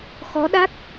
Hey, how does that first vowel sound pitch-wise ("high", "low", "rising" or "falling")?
rising